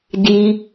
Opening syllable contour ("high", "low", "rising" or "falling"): high